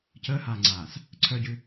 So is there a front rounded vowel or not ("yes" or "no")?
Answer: yes